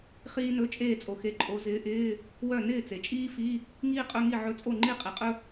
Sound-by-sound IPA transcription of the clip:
χ iː˥ n ɵ˧˥˧ t͡ʃʼ eː˥˨ t͡sʼ o˩ x e˨˦ ǃʼ o˨˦ z ɪː˨˦ ʔ ɪː˧˥˧ | w œ˥˨ n ɪː˥˨ t͡s e˩ t͡ʃʼ iː˥ f i˧˥˧ | ŋ iː˥ qʼ ɵ˧˥˧ ŋ i˥˨ ʕ ɵ˧˥˧ t͡sʼ o˥˨ ŋ͡ǃ i˥˨ qʼ i˩ qʼ ɵ˥

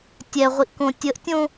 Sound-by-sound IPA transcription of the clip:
tʲ ɛ ʁʷ i ʔ k õ tʲ ə ʔ tʲ õ

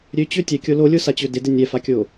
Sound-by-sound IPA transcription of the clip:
ɾʲ ø t͡ɕ ø tʲ ɛ kʲ o l o lʲ o s a t͡ɕ ø d ɪ d ɪ nʲ ɛ f a kʲ o

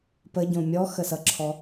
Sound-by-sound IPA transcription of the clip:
p ə ɟ õ mʲ ɔ x ə s ʌ ǁʰ ɔ

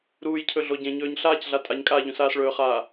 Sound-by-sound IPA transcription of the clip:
ɾ uː j cʰ ɵ ɮ o ɟ ẽ ɲ ɵː ɲ ɬ aː c ɮ a tʼ a ɲ kʼ aː ʎ ũ s aː s ɭ ɵː χ aː

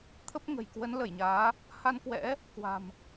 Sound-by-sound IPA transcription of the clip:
t̪ʰ ə˦˥ p̚ ŋ ə̤˨˩ j k w ə˨˦ n l ə˧˩ j ɲ aː˨˦ | h a˧ n k w ɛ̰˧˥ | k w a̤˨˩ m

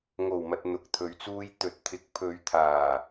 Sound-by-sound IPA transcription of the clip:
ŋ o˨˩ w m ɐ˨ t̚ n̪ ʊ˨˥ k̚ t̪ʰ ɵ˨˧ ɥ t͡s uː˥ j t̪ ɵ˨˥ t̚ t̪ʰ ɪ˨˥ k̚ pʰ ɵ˨˧ ɥ t̪ʰ aː˨˩

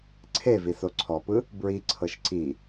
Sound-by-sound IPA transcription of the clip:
ǀʰ e v i s o ǀʰ ɔ p ɯ | b ɹ i ǀʰ ɤ ʃ ǀ i

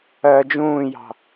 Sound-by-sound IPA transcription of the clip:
ɜ d͡ʒ ũː j ɑ̤

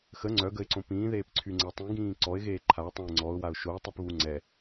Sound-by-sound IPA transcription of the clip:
x ə ŋ͡ǀ œ ɡ ə ɪ̯ ǀ õ p ĩː ð eː p ǀʰ y ŋ͡ǀ ɛ tˤ ĩ ɡ ĩː ǀ ɔ ɪ̯ ɣ eː ǃʰ a ʊ̯ tˤ õ ɪ̯ ŋ͡ǀ ɔ ʊ̯ w a ʊ̯ ʃ o ɪ̯ tˤ y p β u ŋ͡ǀ ɛ

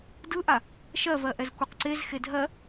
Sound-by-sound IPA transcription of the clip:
d ɯ ʔ a | ʃ ɜ v ɜ ʔ ɛ z kʷ i q ǀ e z x e dʱ ɜ

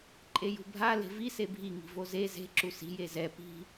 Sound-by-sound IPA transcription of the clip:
ǃʼ e j ṳ bʱ a l e̤ v i s e bʱ i ŋ i̤ v o z e z e̤ ǁ u s i̤ j e z ɛ p i̤

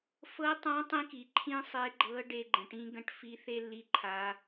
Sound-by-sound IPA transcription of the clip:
f ɤ˧˥ tˤ ã˧˥ tˤ ĩ˧ k i˩ ǃʰ ĩ˥ sˤ e˧˥ ɡ͡ǃ ɤ˧˥ ɖ e˧ ɡ͡ǃ ə̃˩ ʈ ĩ˧˥ ɡ ə̃˧˥ ʈ f i˧˥ θ e˥ lː i˧˥ ǃʰ a˩˧

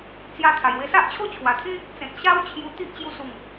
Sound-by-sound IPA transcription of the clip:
t͡s j a˧ t̪ʰ a˨˩ j w e˧ s a˦ ʔ t͡ɕʰ o˥˧ t͡ɕʰ w a˨˩ t̪ʰ ĩ˦ | t͡s ẽ˨ t̚ ɕ a˦ w t͡ɕʰ j u˧ t̪ i˦ ʔ t͡ɕ j u˧ s u˨˩ ŋ

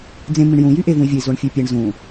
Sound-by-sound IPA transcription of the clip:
d͡z ẽ m ĩ ɳ j ũ j y ʔ e v ũ i̯ vʲ ɯ i̯ z o ɳ fʲ ø pʲ e ɳ z ũ

